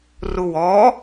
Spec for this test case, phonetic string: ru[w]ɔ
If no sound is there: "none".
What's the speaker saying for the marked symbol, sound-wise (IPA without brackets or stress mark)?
w